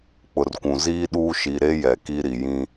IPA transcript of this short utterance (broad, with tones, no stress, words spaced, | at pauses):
k͡pʊ˨rkʷũ˨ ziː˦ɗuː˦ ʃi˨ɾe˦ jɛ˨ki˦ ɾi˨ jĩ˦